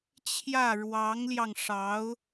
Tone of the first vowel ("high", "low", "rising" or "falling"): falling